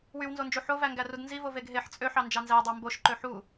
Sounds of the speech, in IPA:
wywnzond͡ʒu ħovæŋɡærud nzivo veɡɦeħ t͡sʼøħɑ nd͡ʒɑnzædˤɑ mboʃ ǃøħu

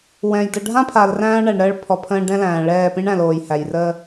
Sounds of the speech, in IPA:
wɛ̃˨j də˨ɖʱã˦ pʰa˨lræ̃ː˦ɐ̯ɳæ˨ɳɾəː˦ɭ pʰɔ˨pʰə̃ː˦ ɖɛ̃˦læ̃ː˨ ɭɛː˦˨pĩ˦ɳæ̃˨loː˨j hæ˨jrəː˦

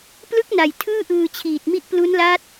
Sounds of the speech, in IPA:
plɯ˦˥k̚ na˨˩j tʰɯː˥˩ʔɯː˧ t͡ɕʰiː˨˩t̚mi˦˥ʔplu˦˥nla˦˥t̚

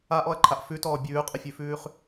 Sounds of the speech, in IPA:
aʔɔɐ̯ǃʰaʔ fʉtɔː bʲʉːqʼəfʲʉfʉːχ

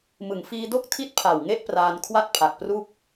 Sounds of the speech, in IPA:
mɯ˩˦ŋfiː˧do˥˩k̚ tʰi˥˩t̚pʰa˨˩w ŋe˥˩ʔpraː˧n kʰwa˥˩t̚pʰa˨˩k̚pru˥˩k̚

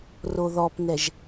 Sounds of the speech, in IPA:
roðɔpnɛʒ

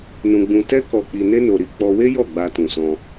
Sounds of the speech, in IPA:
nũ˧ɡ͡bũ˧ tɛ˦kɔ˧ k͡pi˧ne˦no˧ɾi˧ k͡pɔ˧we˦jɔ˦˨ ɡ͡ba˧tũ˨sɔ̃˧

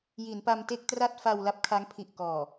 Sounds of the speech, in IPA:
ji˩˦npa˧mte˥˩k̚tra˥˩t̚ fa˧wla˦˥p̚ kʰa˦˥ŋ pʰi˨˩ʔkɔː˨˩

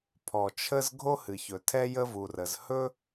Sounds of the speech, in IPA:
pʰɔ˩t͡ʃʰə˥z ɡʱo˥hɨ˩çɵ˩ tʰɛ˥jə˥vu˩rə˩z hɵ˥

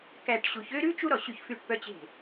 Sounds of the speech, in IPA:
kæ˧˩ʈɕu˩˧ç ø˥ɾʉ˥ t͡ʃu˥ɾɔ˧˩ ɕy˧˩çfy˧˩ʈpœ˧t͡ɕe̤˧˩

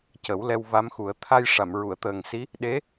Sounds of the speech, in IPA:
cə˨˩˦wlɛ˧w va˧˥mxu˨˩˦ə̯ t̪ʰa˧jʂa˨˩˨m ɹu˨˩˨ə̯t̪əː˨˩ŋ si˧˥ | ɗe˧˥

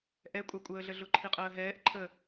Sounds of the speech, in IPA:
ʔɛkʷʼɑkʷʼəːɮə ɮʊǃʰiqʼəːɦɛːʔ ǃʰə

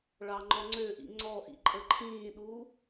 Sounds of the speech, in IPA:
ɭɑŋ͡ǃɔŋ͡ǀøʔḭ ŋ͡ǀɔʔḭ ǃʼəǃʰĩːɗuː

